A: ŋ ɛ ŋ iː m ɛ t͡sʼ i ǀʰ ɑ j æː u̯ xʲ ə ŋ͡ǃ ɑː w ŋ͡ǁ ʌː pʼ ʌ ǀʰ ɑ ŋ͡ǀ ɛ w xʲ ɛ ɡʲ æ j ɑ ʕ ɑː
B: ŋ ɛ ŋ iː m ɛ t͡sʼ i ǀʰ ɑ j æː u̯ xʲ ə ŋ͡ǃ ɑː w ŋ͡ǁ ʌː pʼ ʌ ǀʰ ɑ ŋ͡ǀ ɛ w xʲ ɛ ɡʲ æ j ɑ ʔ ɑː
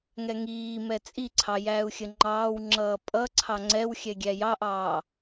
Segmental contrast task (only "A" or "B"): B